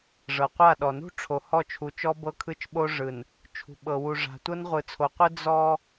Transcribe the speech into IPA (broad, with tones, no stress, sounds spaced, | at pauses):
ʐ ɤ˨ qʷ a˦˨ ɗ ɔ˨ n ṳ˦ ʈ͡ʂʰ o˨ h ɔ˦˨ t͡ʃʰ u˨ t͡ʃ ɔ˦ b ɤ˦ kʰ ɯ˦ t͡ʃ ɓ o˦ ʐ ɯ˨ n | t͡ʃʰ ṳ˨ ɓ ɤ˨ w u˨ ʐ a̤˨ tʷ ɤ˦ n ʁʷ ɯ˨ t͡sʰ o˨ qʷ ɯ˦ d͡z ɔ˦